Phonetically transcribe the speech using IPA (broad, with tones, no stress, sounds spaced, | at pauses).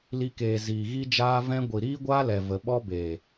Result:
l i˧ k eː˨ z iː˨ ɣ i˦ d͡ʒ aː˦ v ɛ̃˦ ɡʷ i˨ ɾ iː˦ ɡʷ aː˦ l ɛ˨ v ə˧ ɓ ɔ˦ b eː˨